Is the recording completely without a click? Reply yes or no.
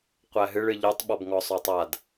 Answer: yes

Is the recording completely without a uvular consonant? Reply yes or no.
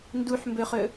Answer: no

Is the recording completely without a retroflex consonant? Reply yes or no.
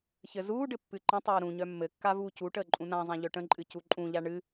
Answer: no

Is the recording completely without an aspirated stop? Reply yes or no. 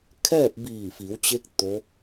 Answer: no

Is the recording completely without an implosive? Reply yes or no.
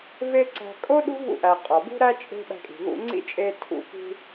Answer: no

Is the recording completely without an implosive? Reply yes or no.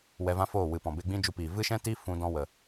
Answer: yes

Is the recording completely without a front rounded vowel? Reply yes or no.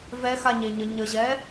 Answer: yes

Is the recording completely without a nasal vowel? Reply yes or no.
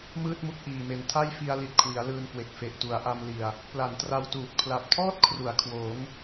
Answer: yes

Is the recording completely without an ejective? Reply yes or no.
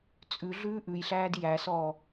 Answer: no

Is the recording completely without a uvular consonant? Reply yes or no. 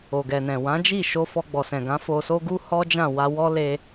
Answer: yes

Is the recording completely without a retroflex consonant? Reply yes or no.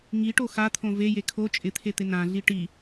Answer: no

